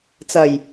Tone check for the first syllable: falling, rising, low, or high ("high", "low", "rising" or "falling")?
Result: low